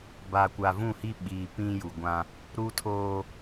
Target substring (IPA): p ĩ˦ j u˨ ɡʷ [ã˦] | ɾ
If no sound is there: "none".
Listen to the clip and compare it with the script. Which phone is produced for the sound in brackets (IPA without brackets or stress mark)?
ã˦